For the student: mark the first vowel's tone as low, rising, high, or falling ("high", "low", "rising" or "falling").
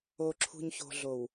low